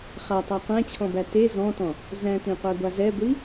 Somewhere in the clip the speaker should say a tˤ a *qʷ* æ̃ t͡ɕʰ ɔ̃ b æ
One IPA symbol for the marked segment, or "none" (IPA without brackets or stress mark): qʷ